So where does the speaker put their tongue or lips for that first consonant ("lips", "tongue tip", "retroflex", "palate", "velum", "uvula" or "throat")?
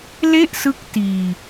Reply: tongue tip